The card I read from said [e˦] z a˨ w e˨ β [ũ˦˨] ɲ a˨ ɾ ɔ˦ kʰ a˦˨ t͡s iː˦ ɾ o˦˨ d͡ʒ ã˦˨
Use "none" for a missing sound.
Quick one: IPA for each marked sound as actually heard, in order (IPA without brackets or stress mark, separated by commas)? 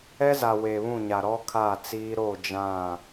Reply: ɛ˦, ũ˦˨